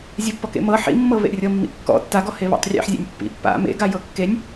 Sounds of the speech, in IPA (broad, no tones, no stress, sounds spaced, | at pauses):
zʲ e pː ɔ k ḛ m ɤ ħ ḭ mː ɤ β ḛ rʲ ɤ mː ḭ kː ɔ̰ tː a ɡ ɔ h e β a̰ tˤ rʲ ḛ ħ zʲ ḛ nʲ pː ḭ pː a̰ m ḛ ɡ a j ɤ kː e nʲ